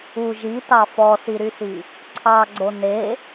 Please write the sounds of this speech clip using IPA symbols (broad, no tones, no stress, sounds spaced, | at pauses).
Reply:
u ʒ i t ɑ f ɔ s i ɾ y s i | ǀʰ ɑ ɡ͡ǀ o n e